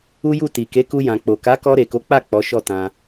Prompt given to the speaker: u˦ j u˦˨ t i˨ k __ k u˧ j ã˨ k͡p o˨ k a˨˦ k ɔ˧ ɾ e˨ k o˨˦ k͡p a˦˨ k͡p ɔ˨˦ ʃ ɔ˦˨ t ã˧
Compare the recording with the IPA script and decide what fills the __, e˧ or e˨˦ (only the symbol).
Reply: e˨˦